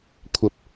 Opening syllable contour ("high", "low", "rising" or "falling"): rising